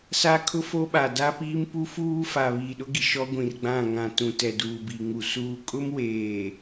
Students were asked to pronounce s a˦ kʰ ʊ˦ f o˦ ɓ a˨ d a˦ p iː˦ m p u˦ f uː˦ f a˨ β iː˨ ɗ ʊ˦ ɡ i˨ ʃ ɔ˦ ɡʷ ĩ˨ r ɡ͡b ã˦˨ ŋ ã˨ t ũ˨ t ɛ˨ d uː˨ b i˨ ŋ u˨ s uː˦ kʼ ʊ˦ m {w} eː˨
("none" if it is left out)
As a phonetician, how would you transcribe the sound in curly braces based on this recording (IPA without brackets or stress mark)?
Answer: w